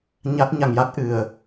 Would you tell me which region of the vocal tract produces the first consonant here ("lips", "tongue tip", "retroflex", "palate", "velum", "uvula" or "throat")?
palate